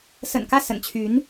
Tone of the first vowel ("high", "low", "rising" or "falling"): low